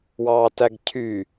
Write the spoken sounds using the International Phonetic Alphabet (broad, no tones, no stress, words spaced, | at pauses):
wɑːtæɡcʰy